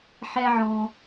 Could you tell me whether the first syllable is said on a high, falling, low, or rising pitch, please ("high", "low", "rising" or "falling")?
high